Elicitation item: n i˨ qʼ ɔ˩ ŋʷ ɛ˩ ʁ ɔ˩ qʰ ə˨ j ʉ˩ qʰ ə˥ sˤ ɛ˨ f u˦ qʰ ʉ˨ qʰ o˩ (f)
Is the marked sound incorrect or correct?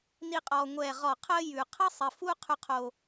incorrect